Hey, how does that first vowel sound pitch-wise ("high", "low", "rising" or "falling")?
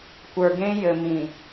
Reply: low